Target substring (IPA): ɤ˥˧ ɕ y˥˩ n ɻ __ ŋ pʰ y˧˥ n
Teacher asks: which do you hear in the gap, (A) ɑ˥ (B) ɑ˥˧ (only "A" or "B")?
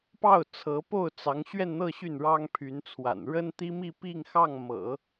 A